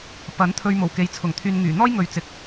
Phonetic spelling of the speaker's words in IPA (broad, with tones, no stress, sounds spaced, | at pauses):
p ɐ˨˥ n t̪ʰ ɵ˥ ɥ m o˨˩ w k e˨˧ j t͡sʰ ʊ˨˩ ŋ t̪ʰ yː˧ n ŋ yː˨˩ n̪ ɔː˥ j ŋ ɵ˨ ɥ t͡s ɪ˨˥ k̚